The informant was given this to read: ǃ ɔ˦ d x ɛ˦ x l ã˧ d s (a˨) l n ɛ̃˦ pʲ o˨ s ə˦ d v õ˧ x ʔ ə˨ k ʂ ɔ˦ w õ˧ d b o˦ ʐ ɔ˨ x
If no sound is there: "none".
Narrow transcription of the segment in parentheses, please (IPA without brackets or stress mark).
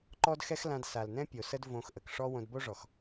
a˨